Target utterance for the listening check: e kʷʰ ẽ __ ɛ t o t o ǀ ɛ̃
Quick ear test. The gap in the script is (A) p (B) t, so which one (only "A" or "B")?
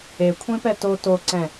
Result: A